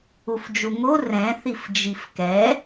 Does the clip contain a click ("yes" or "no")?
no